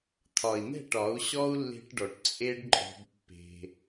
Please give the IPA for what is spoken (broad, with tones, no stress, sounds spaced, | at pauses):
t̪ʰ ɒ˨ i̯ n̪ ɛ̤˦˨ ʈ ɒ˨˦ u̯ ɕ ɔ˦ u̯ lː e̤˧ ʈ ɖ ɔ˨ ʈ t͡sʼ e˦ ɖ ǃʼ ɔ̤˧ b pː e̤˧